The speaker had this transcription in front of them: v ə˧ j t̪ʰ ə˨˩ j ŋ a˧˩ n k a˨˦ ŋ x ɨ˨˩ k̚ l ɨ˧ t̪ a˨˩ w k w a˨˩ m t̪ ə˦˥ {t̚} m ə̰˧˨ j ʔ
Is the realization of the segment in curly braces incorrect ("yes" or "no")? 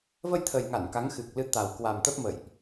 yes